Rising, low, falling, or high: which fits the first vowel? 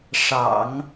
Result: low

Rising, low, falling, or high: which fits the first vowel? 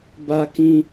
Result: high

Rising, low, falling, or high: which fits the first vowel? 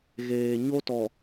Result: low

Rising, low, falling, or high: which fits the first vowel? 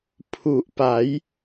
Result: low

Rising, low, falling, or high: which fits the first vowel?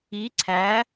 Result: rising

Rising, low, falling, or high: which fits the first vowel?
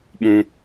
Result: high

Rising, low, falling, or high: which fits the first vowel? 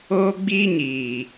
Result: high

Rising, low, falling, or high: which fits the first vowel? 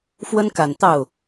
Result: high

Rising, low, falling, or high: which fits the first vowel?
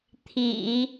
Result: low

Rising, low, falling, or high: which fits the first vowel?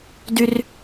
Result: high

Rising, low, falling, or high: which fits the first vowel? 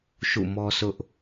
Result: falling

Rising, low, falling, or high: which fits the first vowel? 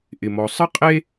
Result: low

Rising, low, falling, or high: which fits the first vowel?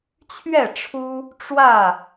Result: falling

